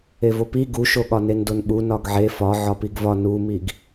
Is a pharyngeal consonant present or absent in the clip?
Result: present